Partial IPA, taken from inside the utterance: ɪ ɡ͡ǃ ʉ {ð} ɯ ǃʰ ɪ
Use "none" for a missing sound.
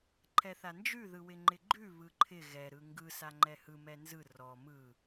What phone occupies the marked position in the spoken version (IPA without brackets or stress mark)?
β